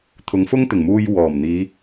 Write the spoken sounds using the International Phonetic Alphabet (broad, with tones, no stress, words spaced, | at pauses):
t̪ʰʊ˨˥ŋfʊ˥ŋt̪ɪ˨˩ŋmuː˧j wɔː˨˩m n̪iː˨˧